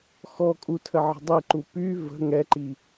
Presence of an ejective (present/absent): present